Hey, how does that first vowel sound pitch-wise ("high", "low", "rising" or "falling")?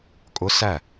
rising